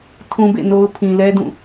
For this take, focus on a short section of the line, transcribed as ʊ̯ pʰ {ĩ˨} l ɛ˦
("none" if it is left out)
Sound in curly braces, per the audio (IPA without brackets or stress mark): ĩ˨